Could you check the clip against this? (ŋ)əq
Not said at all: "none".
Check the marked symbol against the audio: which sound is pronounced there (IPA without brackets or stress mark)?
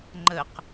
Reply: ŋ͡ǃ